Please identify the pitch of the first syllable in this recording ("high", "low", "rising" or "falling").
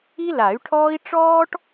high